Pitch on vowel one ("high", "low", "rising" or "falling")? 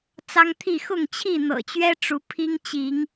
high